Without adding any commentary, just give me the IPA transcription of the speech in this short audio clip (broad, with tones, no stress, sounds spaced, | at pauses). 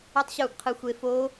u˦˥ tˤ ɕ u˥˨ ɡ qʰ ɯ˦˥ xʷ e˦˥ f o˦˥